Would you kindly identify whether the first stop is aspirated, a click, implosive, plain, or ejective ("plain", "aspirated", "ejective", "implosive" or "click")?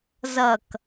plain